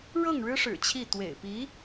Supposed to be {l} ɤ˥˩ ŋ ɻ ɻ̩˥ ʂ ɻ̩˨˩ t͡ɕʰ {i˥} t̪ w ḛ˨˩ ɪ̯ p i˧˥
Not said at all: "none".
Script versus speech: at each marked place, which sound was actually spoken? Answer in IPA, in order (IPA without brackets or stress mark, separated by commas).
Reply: ɻ, i˥˩